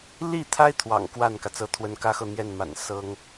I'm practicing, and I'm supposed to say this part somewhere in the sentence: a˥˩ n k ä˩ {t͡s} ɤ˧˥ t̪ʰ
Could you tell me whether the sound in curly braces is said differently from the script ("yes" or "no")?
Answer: no